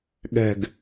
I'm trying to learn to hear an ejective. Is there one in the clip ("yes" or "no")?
no